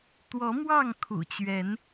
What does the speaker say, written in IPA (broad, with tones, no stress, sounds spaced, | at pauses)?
t̪ w ɔ˨˦ m w ɑ˥˨ ŋ kʰ ṵ˨˩ t͡ɕ ɥ ɛ˨˦ n